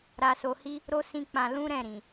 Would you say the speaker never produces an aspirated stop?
yes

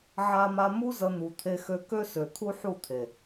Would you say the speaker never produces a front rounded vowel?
no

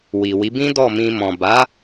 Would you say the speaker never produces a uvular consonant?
yes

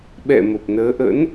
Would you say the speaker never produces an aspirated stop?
yes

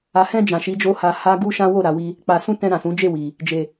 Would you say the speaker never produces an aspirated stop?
yes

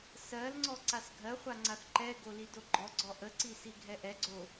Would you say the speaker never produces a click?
no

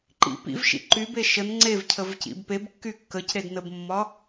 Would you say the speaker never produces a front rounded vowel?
no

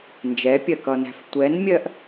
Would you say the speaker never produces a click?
yes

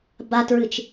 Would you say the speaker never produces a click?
yes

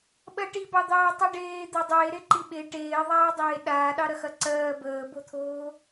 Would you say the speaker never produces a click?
no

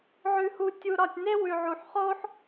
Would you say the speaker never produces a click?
yes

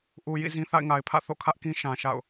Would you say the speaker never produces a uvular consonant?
yes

